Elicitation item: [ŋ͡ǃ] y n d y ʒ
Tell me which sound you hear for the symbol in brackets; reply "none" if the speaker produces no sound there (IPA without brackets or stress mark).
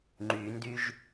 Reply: ŋ͡ǃ